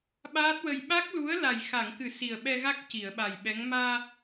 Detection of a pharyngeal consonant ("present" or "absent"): absent